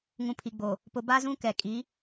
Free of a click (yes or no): yes